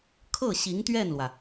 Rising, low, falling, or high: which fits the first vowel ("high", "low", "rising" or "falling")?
falling